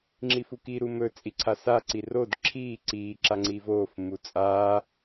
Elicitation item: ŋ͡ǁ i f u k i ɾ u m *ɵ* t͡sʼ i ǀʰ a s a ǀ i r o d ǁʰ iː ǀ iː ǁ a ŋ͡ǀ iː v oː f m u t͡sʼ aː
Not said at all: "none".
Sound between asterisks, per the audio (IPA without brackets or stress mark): ɵ